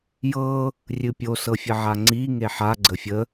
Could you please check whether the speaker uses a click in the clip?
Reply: yes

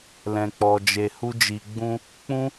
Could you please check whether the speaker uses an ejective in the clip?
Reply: no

